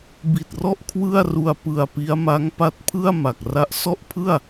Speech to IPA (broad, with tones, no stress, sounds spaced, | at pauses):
b i˨˩ t̚ r ɔ˥˩ ʔ kʰ w ɯ˥˩ a̯ r u˧ a̯ p ɯ˧ a̯ p i˦˥ a̯ m a˦˥ ŋ p a˦˥ t̚ pʰ ɯ˥˩ a̯ m a˨˩ k̚ r a˦˥ ʔ s ɔ˥˩ ʔ pʰ ɯ˥˩ a̯